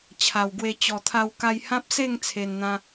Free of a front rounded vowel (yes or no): yes